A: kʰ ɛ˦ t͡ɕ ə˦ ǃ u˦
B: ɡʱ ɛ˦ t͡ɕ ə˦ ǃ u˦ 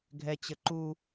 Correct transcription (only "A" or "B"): B